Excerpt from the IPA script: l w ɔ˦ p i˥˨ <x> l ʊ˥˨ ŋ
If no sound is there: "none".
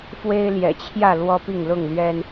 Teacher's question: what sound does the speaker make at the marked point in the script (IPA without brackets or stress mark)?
ŋ